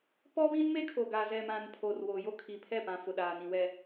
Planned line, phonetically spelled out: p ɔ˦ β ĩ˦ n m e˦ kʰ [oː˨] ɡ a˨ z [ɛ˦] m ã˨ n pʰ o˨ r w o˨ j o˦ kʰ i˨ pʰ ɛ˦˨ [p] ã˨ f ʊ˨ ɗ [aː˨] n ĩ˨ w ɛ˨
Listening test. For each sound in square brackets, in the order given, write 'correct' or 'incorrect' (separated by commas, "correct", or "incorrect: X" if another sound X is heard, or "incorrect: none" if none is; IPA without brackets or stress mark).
incorrect: o˨, incorrect: ɛ˨, correct, correct